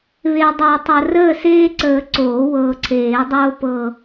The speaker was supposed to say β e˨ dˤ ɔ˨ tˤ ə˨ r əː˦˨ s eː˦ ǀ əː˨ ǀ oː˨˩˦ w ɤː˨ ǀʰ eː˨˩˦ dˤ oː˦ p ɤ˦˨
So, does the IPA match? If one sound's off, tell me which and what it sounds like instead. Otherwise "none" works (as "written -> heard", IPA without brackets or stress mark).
ɔ˨ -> ɤ˨